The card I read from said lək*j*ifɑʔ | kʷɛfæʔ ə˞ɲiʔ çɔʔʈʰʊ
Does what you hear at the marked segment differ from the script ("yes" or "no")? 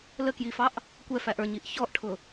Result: no